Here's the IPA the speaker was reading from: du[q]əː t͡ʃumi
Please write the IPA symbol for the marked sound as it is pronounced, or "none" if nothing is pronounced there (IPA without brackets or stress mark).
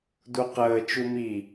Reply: q